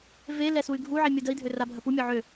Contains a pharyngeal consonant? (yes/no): yes